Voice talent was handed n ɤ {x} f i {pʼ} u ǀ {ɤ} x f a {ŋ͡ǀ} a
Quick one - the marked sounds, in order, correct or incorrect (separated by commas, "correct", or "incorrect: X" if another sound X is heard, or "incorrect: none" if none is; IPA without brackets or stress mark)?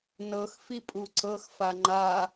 correct, correct, correct, incorrect: ŋ͡ǃ